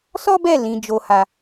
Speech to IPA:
s ɔ˦ b ɛ˦˨ l ĩ˨˦ d͡ʒ o˧ h a˧

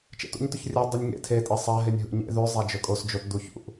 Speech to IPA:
t͡ʃ ḛ t ṵ ɲ t ɵ ç rʲ ʉ dˤ ʉ nʲ ŋ ḛ tʰ e tʼ e sˤ a ɦ e nʲ ɦ ṵ ɲ ḛ ð ʉ zˤ a d͡ʒ ɵ kʼ o s d͡ʒ o t d u ç ṵ ʔ

